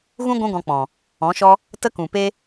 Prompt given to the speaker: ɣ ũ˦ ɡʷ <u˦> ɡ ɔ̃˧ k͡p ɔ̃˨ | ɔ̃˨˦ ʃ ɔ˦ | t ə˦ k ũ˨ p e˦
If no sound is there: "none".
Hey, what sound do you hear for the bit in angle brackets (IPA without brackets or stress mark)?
ũ˦